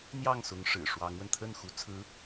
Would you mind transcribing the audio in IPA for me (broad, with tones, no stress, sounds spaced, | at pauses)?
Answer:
n̪ j ɑ˥˩ ŋ s ʊ˧˥ ŋ ʂ ɻ̩˨˩ ʂ w ɑ˧˥ ŋ w ə˧ n t̪ʰ ə˥˩ n x u˧˥ t͡sʰ ɹ̩˧˥